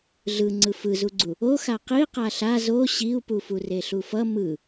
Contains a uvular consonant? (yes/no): yes